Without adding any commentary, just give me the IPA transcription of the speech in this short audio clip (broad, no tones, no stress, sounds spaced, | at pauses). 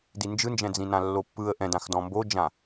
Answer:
d i n d͡ʒ ɯ n d͡ʒ ɛ̃ d͡z ĩ n ã lː o pː ɯ ə̯ ʔ ɛ̃ d ã x d ɔ̃ m b o d͡ʒ ã